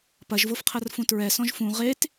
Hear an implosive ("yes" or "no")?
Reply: no